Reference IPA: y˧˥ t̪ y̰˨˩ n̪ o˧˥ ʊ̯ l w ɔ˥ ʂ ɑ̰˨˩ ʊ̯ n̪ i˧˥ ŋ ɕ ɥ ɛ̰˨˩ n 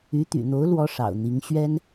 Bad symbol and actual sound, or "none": ɛ̰˨˩ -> ɛ˥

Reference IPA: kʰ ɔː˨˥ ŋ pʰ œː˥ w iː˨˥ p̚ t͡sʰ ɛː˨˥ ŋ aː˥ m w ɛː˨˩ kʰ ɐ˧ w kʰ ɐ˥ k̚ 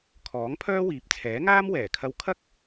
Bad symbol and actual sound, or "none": none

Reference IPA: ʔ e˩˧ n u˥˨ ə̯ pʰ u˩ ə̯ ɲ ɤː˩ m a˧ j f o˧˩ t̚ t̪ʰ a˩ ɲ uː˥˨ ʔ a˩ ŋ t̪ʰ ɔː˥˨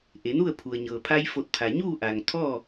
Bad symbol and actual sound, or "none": m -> pʰ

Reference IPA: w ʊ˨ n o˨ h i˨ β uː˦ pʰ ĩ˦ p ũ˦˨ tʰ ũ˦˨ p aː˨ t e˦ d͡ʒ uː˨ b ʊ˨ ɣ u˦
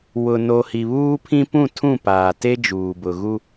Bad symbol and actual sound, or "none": none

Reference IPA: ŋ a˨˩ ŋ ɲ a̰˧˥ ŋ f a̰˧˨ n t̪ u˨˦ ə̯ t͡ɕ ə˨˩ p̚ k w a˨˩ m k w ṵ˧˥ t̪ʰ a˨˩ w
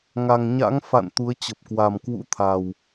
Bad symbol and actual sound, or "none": none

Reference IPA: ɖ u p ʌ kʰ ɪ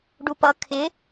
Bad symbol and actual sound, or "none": none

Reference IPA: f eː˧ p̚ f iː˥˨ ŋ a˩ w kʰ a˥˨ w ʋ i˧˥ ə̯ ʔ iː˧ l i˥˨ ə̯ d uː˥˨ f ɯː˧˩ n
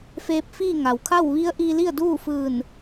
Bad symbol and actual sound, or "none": none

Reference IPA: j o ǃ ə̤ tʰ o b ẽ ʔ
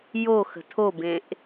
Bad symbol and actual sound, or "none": ǃ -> x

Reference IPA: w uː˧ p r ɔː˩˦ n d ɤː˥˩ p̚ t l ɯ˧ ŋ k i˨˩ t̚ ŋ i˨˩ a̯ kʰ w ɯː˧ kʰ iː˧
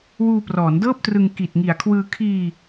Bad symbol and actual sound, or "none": l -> r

